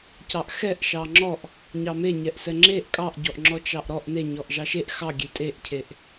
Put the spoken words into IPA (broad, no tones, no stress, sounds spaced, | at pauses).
c ɑ ʔ x ɛ ʔ ʃ ɑ ŋ͡ǁ ɔ ʔ | ɲ ɑ m e ɲ ɛ ʔ s ɛ ŋ͡ǁ e ʔ kʼ ɑ ʔ ɟ ɔ ʔ ŋ͡ǁ ɔ t͡ʃ ɑ ʔ ɾ ɔ ʔ n e ɲ ɔ ʔ ʒ ɑ ʃ e ʔ x ɑ ɡʲ e tʼ e ʔ cʰ e ʔ